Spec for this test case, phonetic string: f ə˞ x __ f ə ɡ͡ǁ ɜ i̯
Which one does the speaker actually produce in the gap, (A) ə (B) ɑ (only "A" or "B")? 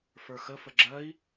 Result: A